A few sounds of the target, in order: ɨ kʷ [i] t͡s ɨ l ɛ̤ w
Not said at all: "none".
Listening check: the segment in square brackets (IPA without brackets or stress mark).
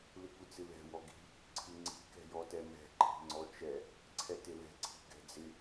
ɨ